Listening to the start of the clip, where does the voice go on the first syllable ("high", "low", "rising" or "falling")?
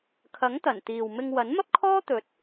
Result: rising